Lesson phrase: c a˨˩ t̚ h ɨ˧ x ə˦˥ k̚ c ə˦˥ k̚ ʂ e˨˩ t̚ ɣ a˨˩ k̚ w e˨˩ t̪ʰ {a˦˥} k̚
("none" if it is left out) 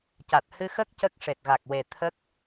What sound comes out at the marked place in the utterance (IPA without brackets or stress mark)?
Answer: ə˦˥